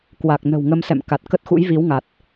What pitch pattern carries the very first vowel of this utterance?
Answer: low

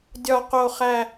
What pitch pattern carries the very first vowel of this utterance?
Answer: low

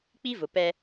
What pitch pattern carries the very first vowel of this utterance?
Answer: high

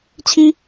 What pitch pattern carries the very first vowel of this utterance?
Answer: high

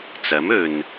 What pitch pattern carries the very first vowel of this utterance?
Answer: rising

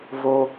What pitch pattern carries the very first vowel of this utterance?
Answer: high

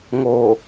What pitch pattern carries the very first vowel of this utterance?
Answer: low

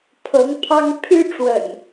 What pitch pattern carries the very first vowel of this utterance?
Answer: rising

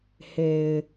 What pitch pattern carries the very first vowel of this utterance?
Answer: low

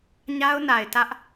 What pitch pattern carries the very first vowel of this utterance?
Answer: high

